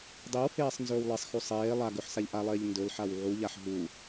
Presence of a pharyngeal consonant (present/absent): present